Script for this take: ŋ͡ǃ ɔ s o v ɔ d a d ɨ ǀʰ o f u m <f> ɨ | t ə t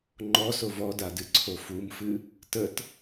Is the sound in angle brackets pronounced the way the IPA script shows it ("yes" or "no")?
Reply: yes